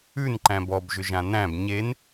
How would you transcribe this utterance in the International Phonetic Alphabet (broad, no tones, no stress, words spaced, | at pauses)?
ʉn ǃæ̃bɔbʒʏʒã næ̃b ɲen